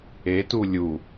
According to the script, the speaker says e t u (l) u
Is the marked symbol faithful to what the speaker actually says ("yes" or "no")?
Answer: no